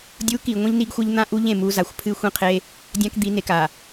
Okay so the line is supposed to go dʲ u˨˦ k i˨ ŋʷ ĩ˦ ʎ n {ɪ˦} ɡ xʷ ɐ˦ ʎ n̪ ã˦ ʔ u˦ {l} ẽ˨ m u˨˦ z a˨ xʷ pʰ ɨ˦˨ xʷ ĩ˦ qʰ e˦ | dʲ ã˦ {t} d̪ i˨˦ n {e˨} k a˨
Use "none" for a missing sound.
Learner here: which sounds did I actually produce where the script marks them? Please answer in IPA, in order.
i˦, ʎ, k, e˨

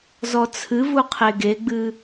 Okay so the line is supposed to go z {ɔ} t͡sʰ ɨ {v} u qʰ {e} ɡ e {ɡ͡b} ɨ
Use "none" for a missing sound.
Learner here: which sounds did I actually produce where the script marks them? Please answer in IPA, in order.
ɔ, v, e, ɡ͡b

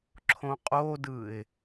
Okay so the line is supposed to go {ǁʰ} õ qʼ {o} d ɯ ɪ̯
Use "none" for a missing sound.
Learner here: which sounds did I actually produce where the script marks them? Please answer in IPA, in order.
ǁʰ, o

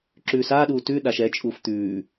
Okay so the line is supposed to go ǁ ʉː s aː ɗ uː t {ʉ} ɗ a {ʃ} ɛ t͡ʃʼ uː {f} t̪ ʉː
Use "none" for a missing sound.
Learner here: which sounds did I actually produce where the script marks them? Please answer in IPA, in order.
ʉ, ʃ, f

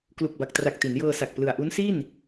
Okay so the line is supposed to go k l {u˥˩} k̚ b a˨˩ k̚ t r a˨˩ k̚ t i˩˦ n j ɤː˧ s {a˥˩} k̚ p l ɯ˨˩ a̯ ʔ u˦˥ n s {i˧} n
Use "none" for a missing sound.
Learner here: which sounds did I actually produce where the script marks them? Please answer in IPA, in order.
u˨˩, a˨˩, i˥˩

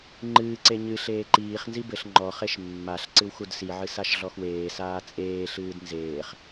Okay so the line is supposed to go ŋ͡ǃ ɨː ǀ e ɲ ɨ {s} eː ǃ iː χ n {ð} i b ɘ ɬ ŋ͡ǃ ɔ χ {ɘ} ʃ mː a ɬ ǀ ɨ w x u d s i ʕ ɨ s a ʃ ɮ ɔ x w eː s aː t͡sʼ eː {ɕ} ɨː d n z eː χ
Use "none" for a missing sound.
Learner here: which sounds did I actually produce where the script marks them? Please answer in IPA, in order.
ɬ, z, e, ɬ

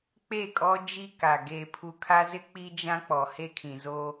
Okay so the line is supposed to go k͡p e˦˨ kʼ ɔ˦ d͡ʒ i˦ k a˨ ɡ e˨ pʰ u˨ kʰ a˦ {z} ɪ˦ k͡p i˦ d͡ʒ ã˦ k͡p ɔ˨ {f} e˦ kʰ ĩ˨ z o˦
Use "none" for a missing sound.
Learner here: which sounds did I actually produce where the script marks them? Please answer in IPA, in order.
z, h

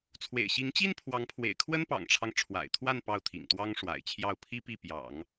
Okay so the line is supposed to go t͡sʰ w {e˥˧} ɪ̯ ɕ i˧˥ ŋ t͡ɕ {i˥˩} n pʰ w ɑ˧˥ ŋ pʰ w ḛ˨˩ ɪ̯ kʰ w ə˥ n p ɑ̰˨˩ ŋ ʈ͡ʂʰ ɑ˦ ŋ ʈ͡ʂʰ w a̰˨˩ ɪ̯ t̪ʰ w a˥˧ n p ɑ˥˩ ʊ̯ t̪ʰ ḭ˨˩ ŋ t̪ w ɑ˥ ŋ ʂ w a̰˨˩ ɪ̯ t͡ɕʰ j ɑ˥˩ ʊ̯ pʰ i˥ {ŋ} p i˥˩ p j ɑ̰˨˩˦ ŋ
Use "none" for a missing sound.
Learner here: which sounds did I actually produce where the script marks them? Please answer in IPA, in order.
ḛ˨˩, i˥, none

